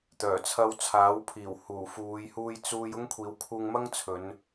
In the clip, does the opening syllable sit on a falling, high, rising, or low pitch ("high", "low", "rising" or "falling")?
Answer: low